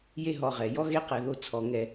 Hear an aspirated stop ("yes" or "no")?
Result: yes